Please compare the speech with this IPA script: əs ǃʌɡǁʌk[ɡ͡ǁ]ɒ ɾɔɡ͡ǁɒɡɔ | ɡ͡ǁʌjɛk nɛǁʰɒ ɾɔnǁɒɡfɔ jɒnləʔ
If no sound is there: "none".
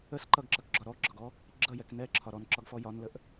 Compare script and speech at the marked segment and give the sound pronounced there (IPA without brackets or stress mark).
ɡ͡ǁ